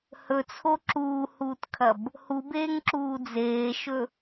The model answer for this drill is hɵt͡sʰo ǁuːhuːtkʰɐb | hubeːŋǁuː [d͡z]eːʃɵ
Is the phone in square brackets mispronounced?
no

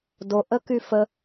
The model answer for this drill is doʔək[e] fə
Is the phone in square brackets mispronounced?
yes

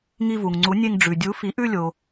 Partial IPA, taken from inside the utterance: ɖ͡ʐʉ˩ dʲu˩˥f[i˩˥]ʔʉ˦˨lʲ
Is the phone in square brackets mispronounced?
no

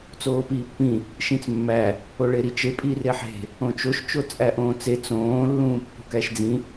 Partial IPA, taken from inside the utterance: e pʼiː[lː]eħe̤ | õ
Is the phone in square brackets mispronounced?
yes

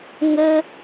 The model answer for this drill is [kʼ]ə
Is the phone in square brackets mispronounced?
yes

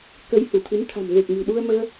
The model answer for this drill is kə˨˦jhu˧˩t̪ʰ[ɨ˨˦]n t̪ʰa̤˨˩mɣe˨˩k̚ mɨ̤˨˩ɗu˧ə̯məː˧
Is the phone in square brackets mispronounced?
no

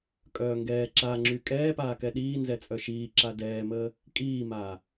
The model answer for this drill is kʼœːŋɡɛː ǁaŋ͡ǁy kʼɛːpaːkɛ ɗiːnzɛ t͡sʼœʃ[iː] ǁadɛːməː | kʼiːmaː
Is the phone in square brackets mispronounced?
no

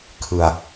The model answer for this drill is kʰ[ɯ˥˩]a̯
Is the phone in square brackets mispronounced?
yes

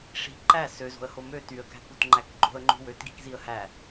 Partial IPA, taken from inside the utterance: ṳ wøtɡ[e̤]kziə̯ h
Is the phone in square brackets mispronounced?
yes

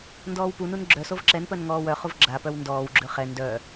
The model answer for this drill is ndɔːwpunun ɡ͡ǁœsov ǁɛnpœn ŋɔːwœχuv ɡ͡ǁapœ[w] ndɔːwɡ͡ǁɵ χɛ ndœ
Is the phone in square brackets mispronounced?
no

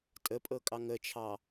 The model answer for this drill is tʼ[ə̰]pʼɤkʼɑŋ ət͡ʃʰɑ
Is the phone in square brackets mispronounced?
yes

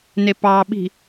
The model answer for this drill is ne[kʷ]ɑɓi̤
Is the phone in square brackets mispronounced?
yes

